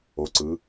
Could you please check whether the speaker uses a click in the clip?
yes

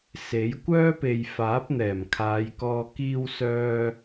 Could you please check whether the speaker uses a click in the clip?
no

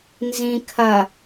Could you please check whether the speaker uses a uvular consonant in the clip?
no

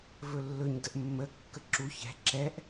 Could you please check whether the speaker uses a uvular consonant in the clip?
no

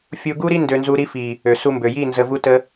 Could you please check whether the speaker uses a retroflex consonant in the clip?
no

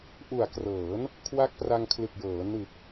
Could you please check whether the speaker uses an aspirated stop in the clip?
yes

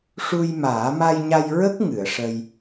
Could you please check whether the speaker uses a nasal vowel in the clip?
no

